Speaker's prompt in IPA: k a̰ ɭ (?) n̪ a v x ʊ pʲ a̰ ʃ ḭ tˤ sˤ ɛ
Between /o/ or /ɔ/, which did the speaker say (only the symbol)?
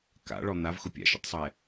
ɔ